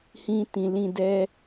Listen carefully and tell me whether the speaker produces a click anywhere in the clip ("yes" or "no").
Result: no